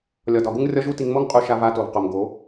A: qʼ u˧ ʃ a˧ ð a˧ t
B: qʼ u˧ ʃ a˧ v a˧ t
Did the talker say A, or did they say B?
B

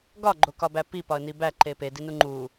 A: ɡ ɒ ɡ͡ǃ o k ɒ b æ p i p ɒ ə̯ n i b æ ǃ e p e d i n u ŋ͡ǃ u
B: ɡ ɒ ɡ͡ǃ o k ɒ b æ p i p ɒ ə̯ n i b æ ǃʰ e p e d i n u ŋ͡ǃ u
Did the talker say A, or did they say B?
A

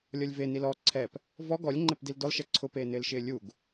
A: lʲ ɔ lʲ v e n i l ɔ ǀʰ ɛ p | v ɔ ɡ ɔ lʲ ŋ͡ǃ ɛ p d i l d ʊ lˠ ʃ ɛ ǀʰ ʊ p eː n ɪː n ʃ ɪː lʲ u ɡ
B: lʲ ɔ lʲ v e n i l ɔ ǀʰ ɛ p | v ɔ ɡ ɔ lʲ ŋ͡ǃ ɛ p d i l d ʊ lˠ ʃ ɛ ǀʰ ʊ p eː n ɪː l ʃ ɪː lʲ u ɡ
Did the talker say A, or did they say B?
B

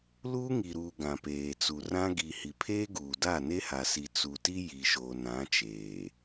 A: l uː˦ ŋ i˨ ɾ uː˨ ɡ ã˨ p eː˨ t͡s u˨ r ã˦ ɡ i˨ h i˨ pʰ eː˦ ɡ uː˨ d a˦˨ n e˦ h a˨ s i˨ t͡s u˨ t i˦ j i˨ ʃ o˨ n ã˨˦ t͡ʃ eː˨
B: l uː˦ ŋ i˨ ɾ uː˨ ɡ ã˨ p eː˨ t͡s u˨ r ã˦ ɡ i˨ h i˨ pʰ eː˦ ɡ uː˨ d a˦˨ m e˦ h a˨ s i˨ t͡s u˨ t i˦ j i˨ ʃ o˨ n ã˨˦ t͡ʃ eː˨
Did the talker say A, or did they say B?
A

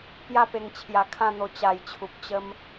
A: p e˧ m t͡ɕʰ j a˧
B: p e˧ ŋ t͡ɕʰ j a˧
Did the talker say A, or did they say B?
B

